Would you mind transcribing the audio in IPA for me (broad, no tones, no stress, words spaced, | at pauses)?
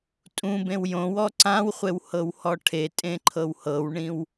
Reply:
tʼũbẽw jõwɔ ǀãwχʷew hɤwhɔʈʰetʼẽ ǃʰɤwhɤwɳĩw